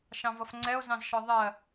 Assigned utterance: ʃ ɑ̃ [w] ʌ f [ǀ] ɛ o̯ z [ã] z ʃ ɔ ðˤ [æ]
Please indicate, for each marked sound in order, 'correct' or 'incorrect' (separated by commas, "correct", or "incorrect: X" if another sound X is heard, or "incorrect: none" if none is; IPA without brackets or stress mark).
incorrect: v, incorrect: ŋ͡ǀ, incorrect: ɑ̃, incorrect: ɜ